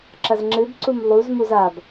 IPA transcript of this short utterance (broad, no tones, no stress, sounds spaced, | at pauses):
ǁ ɐ z ŋ͡ǁ ɨ b ǀ u m lˠ u z m u z a b